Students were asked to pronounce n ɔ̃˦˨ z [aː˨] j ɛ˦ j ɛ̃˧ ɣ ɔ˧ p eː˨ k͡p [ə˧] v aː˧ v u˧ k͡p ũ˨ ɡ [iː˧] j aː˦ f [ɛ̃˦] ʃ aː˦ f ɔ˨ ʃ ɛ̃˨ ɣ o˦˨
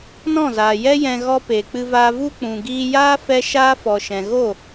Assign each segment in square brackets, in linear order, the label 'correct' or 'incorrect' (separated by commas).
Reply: correct, incorrect, correct, incorrect